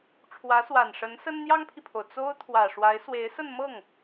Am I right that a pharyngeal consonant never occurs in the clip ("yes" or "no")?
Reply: yes